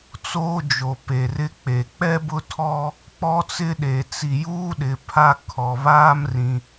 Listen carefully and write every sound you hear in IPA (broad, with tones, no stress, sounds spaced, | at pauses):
t͡s oː˦ d͡ʒ o˨ p e˨ r ɪ˦ k͡p e˨ k͡p ɛ˦ b ʊ˦ tʰ ɔ˦ | k͡p ɔ˦ t͡s ɪ˦ ɗ e˨ t͡s i˨ j uː˦ ɗ ɪ˨ pʰ a˦ kʰ ɔ˨ β aː˦ m r ĩ˨